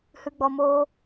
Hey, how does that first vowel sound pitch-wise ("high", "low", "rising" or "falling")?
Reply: low